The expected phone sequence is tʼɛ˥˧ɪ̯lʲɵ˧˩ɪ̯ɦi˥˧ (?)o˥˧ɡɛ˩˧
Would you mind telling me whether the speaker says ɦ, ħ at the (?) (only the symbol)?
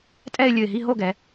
ɦ